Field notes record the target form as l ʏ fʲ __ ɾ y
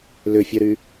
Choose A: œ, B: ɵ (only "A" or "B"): A